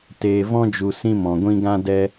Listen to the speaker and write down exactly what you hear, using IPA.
t eː˨ v ɔ̃˧ d͡ʒ u˨ s ĩ˧ m ɔ̃˨ ɡʷ ĩ˧ ɡ ã˧ d ɛ˧

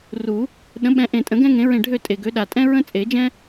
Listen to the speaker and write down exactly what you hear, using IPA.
r u˨˩˦ | ɗ ə̃˨˥ ɓ ɛ̃˨˥ ʔ ẽ˨˩ tʼ ə̃˨˩˦ ɡ ɛ̃˥ ŋ ẽ˨˥ ɹ ẽ˦˨ ɖʱ ø˦˨ tʼ e˨˩ ɡ ø˨˥ ɗ a˨˩ tʼ ɛ̃˥ ɹ ə̃˥ t͡sʼ e˨˩˦ d͡ʒ ɛ̃˥

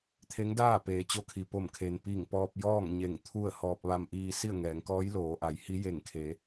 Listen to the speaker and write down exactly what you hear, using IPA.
t̪ʰ e˧˥ ŋ d aː˥˨ p eː˩ t͡ɕ o˧˥ kʰ i˩ p o˧˩ m kʰ e˩ n p i˧˩ ŋ p ɔː˧ p̚ j ɔː˥˨ ŋ ɲ e˧˩ ŋ t̪ʰ u˥˨ ə̯ h ɔː˧ p̚ ʋ a˧ m ʔ iː˧ s i˥˨ ə̯ ŋ ɛː˩˧ ŋ k ɔː˧˥ j l oː˩˧ ʔ a˩˧ j h i˧˥ j e˧˩ ŋ kʰ e˩˧

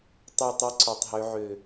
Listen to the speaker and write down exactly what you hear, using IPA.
tˤ e˦˨ tˤ e˦ ǀ y˨ tˤ ɦ ø˦ ʕ ø˦˨

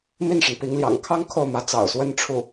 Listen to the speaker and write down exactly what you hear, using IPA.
m i˥˩ n ʂ ə˩ n p i˧˥ ŋ l j ɑ̰˨˩ ŋ kʰ ɑ˥ ŋ kʰ o˥˩ ʊ̯ m ä˧˥ t͡s ɑ̰˨˩ ʊ̯ s w ə˥˧ n ʈ͡ʂʰ u˥˩

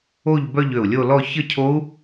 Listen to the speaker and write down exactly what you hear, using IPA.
o˥˧ ʎ b œ˥˧ ʎ ø˧˩ u̯ lʲ o˥˧ l ɔ˥˧ ç ə˥˧ cʰ o˦˥ u̯

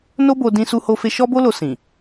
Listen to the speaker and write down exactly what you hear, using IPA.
n o˦ b o˧ d ĩ˧ s u˧ h o˧ f e˧ ʃ ɔ˦ b o˦ l o˧ s ĩ˨

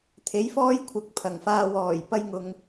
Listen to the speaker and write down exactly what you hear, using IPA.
t̪ʰ e˨˥ j f ɔː˥ j kʷʰ ɐ˨˥ k̚ pʰ ɐ˨˩ ŋ f aː˧ w ɔː˨˩ j p ɐ˥ j ŋ ʊ˧ ŋ

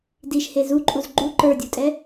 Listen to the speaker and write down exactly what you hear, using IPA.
d i ʃ h e z u ǃʼ u z ɡ͡ǃ u ǃ ə˞ dʲ u tʼ ɛ

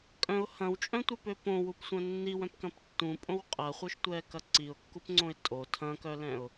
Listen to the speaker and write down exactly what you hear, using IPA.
kʼ œ̃ ʊ̯ h ɐ̃ w t͡ʃʼ œ̃ tʷ œ p ø p õ w u p sʷ œ̃ nː i w œ̃ p k ɐ̃ p tː ũ pʼ õ w qʼ ɐ χʷ œ ʃ tʷ ɛ k ɐ ǀ i ʊ̯ kː u p ŋ͡ǀ õ ɪ̯ tʼ o tʰ ɐ̃ k œ l ɛ̃ ʊ̯

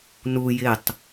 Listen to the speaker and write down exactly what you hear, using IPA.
n u j ɪ tˤ

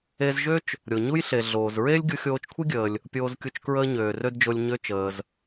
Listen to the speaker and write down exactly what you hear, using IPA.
e˧ z ʒ ø˥ t͡ʃ | ɾʲ o˩ ɲ u˥ j ɬ e˩ ɮ oː˩ z ɹ e˥ lʲ ɡʲ u˧ xʲ oː˧ t͡ʃ kʷʰ i˥ ɡʲ əː˩ lʲ | pʲ oː˧ z kʲ u˧ t͡ʃ k ɹ əː˥ ɲ øː˩ r ø˥ d d͡ʒ o˧ lʲ ɲ ø˧ t͡ʃ əː˩ z

